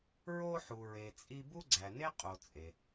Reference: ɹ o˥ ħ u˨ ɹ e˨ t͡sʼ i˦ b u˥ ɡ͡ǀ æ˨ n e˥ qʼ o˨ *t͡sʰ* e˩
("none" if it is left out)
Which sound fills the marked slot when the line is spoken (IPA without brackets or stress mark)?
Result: t͡sʼ